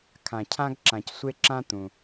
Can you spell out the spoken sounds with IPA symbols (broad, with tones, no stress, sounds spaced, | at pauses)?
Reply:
kʰ ã˩ cʰ ã˧ ɡ ǁ ã˩ c sʷ e˧ ǁ ã˧ t̪ ũ˩